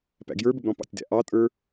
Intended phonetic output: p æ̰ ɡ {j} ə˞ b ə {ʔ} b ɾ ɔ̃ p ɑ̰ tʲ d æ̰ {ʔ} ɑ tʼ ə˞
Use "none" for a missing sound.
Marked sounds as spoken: j, none, ʔ

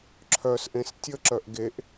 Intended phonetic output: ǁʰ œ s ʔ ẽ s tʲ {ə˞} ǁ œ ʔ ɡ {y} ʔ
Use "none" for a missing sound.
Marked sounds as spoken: ə, e

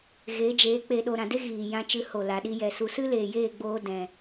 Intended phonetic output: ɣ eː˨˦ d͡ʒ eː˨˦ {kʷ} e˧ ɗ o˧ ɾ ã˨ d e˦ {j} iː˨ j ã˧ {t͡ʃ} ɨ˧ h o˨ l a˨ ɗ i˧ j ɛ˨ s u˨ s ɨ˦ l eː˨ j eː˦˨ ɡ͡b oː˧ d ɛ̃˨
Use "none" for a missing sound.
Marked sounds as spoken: k͡p, ɣ, t͡ʃ

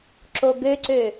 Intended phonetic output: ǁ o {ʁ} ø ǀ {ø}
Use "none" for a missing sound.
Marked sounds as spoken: ɡ, ø

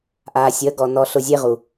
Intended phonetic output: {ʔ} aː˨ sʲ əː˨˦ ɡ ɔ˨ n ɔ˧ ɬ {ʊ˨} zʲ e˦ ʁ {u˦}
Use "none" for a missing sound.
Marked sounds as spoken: ʔ, ʊ˧, u˨

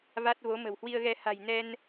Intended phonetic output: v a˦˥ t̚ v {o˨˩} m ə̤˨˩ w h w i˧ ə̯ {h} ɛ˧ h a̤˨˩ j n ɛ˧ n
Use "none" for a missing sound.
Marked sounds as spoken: o˨˦, ɣ

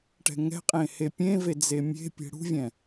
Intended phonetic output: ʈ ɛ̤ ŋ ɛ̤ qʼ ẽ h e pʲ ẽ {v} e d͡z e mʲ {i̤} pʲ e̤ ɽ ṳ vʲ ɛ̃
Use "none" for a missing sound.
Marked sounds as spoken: v, e̤

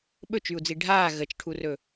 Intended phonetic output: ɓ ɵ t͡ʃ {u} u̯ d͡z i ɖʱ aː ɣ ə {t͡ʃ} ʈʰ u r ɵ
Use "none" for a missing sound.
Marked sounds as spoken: y, t͡ʃ

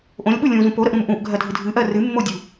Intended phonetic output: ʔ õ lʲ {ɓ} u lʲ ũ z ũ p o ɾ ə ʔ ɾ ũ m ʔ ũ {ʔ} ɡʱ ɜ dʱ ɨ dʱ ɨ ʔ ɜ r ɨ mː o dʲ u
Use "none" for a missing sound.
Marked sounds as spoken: ɓ, ʔ

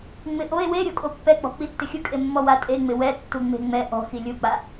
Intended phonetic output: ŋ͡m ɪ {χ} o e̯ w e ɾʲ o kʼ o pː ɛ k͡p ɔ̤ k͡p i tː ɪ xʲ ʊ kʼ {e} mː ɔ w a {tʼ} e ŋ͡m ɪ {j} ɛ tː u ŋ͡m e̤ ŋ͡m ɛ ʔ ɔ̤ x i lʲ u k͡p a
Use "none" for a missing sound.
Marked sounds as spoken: ʔ, e, tʼ, w

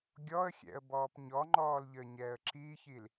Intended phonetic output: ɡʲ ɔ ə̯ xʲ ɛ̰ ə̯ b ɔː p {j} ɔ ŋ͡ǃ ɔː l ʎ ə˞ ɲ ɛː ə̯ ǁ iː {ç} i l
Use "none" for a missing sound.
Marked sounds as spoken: ɲ, ç

